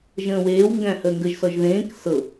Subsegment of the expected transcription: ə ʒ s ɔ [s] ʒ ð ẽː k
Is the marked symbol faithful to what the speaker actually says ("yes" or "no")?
no